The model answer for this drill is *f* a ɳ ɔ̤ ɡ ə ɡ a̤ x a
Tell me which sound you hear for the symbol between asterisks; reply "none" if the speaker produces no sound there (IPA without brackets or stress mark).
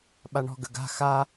ɓ